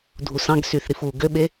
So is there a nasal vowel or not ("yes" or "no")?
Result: yes